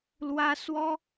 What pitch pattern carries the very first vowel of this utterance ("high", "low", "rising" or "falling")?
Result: high